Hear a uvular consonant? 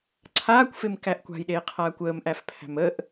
yes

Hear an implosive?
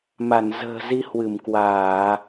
no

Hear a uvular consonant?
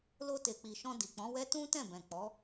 no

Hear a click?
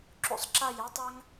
yes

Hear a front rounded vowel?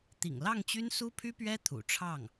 yes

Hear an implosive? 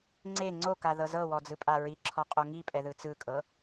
no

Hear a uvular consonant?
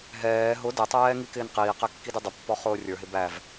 yes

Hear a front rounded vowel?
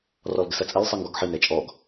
no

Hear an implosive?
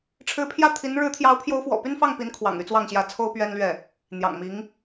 no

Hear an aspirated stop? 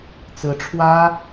yes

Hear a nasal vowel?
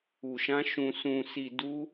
yes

